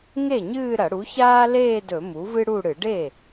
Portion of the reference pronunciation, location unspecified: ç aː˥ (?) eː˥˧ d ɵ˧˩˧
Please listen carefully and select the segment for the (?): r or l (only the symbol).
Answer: l